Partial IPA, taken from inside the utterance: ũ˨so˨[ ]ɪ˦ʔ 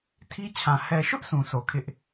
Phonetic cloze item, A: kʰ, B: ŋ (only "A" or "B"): A